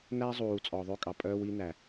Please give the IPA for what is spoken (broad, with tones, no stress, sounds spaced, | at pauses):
n æ˦ zˤ uː˨ t͡sʼ ɔ˨ ðˤ ø˦ kʼ ɑ˨ pʼ œː˦ w i˦ n æ˨